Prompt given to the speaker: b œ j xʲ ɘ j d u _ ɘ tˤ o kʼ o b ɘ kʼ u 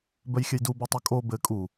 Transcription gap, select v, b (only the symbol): b